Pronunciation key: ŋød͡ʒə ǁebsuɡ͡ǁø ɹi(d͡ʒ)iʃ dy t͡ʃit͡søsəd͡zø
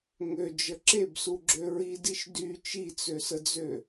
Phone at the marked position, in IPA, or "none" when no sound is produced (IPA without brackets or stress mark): d